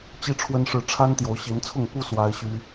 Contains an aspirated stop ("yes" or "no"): yes